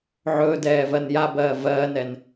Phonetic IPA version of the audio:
ʕ ɵː d ɛː v ɜ n j a b ɜː v ɜː n ɛ n

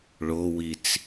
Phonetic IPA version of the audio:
ɭ o w i t͡s

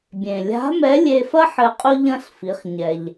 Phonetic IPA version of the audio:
bʲ ẽ˩ lʲ a̤˧˥ m ɛ˧˥ lʲ e˧ f ɐ˥ ħ ɘ˧˥ qʼ u˥ ʎ ɐ̃˥ ɬ f i˩˧ χ ɲ ɛ˩ ʎ

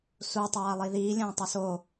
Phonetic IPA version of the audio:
s u tˤ aː lˠ i ð iː lʲ ɐ̃ː tˤ ɵ s o

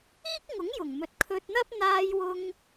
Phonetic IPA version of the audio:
iː˥ k̚ ŋ ʊ˨˥ ŋ j ʊ˨˩ ŋ m ɵ˧ t̚ kʰ ɵ˧ t̚ n̪ ɐ˥ p̚ n̪ aː˧ j w ʊ˧ ŋ

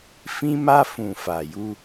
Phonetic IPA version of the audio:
f ĩ˧ m a˧ f ũ˨ f a˨ j u˧

